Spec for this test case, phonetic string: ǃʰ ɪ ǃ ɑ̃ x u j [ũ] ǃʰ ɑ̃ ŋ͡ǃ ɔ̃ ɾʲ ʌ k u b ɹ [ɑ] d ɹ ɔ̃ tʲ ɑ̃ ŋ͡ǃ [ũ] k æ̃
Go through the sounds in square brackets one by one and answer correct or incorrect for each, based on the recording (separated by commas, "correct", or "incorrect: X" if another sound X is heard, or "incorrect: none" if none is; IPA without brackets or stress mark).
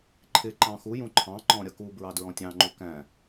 correct, correct, incorrect: u